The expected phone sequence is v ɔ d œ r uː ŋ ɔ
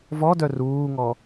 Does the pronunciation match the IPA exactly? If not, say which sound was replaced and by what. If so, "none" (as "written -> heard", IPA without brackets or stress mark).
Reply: none